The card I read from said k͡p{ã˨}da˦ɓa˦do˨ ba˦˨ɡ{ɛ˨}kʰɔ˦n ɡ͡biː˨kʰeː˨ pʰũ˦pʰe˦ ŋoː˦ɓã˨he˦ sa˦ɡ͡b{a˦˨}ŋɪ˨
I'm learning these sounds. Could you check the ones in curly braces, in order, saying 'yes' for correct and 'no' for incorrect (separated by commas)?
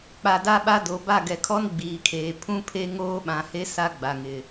no, yes, no